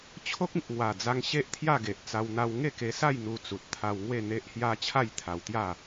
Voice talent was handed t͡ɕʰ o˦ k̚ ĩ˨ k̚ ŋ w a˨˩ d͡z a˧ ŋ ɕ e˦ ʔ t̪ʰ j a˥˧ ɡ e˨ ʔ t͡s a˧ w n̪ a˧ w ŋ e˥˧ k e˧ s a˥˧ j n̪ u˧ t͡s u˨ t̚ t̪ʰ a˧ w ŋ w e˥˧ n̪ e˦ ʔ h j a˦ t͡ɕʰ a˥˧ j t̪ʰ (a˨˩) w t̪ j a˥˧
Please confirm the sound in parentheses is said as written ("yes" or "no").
no